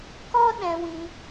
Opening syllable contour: high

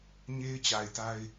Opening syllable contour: high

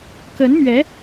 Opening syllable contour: rising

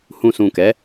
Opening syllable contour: low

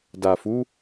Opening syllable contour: low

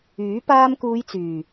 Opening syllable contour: rising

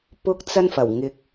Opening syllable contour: high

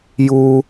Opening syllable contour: high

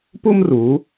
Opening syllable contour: high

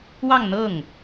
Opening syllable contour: falling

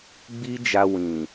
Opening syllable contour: high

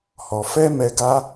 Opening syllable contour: low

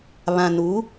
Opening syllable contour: low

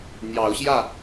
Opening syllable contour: rising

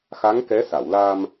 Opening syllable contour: rising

